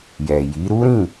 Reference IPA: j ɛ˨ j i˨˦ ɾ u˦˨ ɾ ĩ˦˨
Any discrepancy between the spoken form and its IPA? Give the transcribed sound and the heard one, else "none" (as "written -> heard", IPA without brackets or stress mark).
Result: u˦˨ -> u˦